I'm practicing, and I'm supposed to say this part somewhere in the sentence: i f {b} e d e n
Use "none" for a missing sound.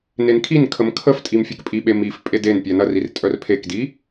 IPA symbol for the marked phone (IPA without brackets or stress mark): pʼ